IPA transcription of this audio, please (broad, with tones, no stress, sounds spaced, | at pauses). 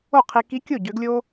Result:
o˥˩ qʰ i˧ k i˧˥ kʲ o˥˩ ɟ ø˧˥ ɡ lʲ o˥